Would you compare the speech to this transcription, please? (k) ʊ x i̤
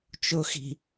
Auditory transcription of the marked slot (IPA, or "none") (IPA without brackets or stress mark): t͡ʃ